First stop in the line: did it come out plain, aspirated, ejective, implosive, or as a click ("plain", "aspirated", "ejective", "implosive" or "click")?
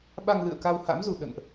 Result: implosive